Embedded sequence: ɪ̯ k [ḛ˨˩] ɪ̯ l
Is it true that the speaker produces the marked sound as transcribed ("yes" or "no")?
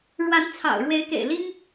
yes